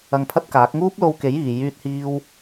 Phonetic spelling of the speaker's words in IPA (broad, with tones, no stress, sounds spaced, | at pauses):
ɐ˧ ŋ pʰ ɐ˥ t̚ k aː˨˥ k̚ ŋ uː˥ p̚ l o˧ w k e˨˥ j iː˨ j yː˥ t̚ h iː˥ w